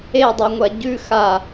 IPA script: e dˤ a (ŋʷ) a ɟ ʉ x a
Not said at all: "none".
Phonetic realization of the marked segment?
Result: ŋʷ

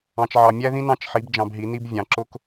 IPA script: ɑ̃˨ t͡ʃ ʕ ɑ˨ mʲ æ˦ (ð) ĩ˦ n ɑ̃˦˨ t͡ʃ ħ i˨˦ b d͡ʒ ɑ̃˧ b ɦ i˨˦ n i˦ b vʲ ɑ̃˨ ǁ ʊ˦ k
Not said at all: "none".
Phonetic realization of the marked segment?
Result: ð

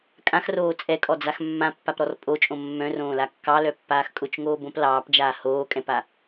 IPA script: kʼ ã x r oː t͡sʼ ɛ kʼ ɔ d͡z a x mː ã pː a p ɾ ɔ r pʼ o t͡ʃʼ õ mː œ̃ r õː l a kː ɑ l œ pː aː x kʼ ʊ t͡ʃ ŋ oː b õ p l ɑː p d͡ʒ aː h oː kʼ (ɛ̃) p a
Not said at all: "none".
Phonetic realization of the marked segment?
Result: ɛ̃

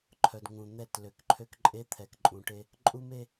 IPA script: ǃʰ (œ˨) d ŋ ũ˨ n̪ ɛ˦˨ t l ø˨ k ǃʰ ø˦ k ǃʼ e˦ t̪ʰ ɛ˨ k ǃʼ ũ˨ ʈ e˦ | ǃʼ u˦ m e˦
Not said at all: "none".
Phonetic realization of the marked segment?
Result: œ˨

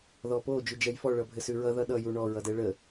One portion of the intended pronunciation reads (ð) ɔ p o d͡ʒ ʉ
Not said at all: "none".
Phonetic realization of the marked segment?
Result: ð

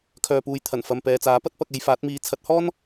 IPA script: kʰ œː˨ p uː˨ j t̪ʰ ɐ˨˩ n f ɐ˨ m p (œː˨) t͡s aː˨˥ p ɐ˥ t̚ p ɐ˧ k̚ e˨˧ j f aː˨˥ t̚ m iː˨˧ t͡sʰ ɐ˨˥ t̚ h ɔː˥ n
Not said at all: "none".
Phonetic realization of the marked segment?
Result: ɛː˨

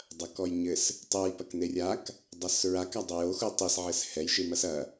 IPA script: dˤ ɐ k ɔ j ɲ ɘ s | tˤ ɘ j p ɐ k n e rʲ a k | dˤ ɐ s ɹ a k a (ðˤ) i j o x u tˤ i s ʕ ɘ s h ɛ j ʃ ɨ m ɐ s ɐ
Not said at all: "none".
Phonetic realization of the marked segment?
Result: dˤ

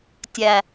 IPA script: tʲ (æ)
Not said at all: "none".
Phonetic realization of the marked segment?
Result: æ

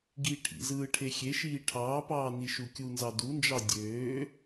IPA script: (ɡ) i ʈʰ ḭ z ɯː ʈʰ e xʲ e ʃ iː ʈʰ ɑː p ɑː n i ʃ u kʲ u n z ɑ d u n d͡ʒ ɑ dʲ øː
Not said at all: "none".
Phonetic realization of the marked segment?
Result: ɡ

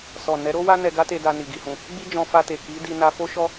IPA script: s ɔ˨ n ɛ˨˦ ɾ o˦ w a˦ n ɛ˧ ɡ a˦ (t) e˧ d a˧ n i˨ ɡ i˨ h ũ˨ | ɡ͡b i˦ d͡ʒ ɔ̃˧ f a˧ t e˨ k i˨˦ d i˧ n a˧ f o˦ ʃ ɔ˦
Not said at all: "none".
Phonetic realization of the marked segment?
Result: t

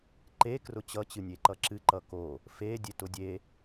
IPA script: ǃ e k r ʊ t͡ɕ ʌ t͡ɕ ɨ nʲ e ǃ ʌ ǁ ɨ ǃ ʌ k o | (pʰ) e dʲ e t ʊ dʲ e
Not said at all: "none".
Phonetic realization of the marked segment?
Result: f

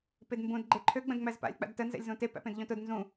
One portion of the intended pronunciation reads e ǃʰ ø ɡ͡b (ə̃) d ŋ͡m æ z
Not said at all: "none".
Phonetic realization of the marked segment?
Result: ə̃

